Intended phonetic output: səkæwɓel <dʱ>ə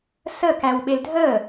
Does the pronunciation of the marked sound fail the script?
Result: no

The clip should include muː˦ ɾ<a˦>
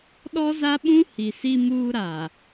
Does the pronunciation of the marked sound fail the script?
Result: yes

